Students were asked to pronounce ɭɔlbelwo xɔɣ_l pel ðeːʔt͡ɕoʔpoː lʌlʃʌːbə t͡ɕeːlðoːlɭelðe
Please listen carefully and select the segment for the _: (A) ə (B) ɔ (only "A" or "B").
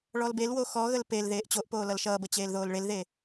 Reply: A